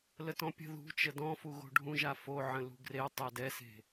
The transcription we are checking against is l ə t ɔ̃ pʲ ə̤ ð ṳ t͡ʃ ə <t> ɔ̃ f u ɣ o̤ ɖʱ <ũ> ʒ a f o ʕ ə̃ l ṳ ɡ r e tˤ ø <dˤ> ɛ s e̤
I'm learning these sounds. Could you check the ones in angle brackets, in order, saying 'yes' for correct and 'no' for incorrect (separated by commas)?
no, yes, no